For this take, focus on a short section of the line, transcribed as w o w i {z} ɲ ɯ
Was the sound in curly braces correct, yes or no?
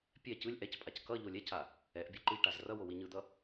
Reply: no